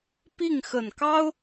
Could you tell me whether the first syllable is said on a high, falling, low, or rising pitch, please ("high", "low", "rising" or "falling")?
falling